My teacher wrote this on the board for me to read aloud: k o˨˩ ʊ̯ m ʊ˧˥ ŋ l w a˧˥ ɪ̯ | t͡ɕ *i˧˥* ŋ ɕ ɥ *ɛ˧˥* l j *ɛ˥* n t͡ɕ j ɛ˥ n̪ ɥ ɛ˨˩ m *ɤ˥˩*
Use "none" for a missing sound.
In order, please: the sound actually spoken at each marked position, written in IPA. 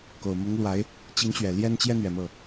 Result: i˧˥, ɛ˨˩, ɛ˥, ɤ˥˩

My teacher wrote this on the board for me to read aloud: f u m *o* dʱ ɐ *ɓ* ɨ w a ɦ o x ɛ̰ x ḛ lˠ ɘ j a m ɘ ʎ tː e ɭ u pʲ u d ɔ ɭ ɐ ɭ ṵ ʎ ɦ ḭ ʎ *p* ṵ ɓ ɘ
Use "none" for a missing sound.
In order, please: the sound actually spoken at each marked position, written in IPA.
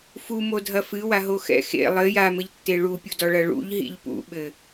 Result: o, f, p

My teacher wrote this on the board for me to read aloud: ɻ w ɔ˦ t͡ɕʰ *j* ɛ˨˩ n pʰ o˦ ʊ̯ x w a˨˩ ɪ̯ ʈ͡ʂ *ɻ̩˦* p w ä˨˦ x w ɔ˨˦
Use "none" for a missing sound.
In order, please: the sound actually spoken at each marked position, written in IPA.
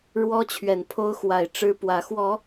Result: ɥ, ɻ̩˦

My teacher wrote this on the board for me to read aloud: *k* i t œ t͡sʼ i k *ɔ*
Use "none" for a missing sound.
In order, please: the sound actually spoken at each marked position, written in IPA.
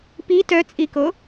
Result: p, o

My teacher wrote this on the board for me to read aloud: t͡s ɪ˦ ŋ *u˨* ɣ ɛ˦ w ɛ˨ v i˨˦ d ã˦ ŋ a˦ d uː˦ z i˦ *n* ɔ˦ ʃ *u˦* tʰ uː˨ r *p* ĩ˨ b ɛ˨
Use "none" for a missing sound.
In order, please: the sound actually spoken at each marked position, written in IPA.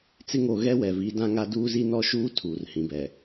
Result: o˨, n, uː˦, h

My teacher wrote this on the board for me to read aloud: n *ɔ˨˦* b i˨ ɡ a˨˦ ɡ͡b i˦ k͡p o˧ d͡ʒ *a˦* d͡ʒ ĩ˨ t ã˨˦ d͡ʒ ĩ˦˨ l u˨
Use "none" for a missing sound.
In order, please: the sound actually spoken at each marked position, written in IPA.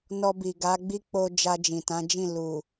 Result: ɔ˧, a˧

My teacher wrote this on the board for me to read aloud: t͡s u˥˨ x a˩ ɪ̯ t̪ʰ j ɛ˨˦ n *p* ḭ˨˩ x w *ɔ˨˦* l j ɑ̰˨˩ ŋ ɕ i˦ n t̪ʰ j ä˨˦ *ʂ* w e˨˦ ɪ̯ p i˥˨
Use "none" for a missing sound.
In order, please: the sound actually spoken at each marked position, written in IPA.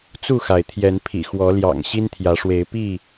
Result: pʰ, ɔ˨˦, ʂ

